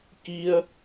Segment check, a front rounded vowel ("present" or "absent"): absent